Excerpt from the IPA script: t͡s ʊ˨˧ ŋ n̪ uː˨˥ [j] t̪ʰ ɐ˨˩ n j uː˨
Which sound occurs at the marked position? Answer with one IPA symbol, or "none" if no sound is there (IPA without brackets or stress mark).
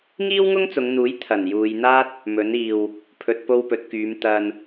j